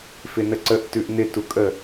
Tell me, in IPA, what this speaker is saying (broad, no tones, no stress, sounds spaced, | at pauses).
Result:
f ɪ n ə ǀ ə ʔ t ʉ ʔ n̪ ɪ t u kʼ ə